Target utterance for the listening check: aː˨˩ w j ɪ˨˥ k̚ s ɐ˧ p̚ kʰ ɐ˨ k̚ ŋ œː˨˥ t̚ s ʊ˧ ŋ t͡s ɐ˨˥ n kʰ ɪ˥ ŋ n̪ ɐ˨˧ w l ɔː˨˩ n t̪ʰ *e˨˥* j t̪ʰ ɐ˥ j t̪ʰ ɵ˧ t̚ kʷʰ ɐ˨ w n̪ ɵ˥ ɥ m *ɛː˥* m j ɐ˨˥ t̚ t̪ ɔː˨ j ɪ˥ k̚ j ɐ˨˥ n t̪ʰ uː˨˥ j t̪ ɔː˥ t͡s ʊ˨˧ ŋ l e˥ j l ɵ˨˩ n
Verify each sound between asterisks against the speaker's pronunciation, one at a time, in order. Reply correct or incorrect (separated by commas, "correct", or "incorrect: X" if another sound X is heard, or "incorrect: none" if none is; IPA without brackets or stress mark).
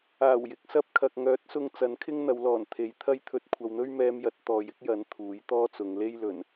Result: correct, incorrect: ɛː˧